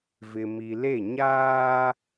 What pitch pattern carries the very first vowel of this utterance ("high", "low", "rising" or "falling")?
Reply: low